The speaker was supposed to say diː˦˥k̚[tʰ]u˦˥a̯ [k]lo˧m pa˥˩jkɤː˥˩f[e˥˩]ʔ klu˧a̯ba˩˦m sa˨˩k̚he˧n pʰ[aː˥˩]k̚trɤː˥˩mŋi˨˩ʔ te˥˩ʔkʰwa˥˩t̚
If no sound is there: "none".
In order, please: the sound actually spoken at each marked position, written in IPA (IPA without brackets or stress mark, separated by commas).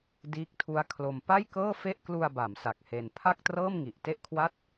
tʰ, kʰ, e˥˩, a˥˩